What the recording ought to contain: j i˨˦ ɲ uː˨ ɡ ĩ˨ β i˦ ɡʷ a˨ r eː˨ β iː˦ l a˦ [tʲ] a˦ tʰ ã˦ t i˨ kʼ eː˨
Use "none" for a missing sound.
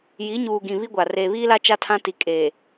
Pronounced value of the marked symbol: t͡ʃ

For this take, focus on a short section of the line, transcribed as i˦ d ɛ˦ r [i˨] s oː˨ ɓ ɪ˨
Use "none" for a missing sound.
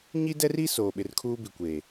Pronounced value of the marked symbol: i˦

